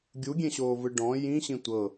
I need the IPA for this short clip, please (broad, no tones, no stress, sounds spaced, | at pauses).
ɡʲ u ɡʲ ẽ ɕ oː v ɯ ɖ ɔ̃ j ĩ ɕ ĩ tʷ ɤ